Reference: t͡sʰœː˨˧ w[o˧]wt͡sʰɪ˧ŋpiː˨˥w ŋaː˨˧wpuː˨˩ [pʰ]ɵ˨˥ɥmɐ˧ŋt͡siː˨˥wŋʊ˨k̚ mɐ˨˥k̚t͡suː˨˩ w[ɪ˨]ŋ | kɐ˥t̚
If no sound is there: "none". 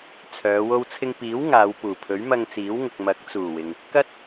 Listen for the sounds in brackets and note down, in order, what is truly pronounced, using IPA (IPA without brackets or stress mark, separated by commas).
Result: o˧, pʰ, ɪ˨